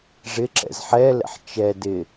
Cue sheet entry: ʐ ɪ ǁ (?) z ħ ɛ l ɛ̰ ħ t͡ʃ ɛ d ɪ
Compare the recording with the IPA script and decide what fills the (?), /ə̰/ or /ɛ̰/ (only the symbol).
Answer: ɛ̰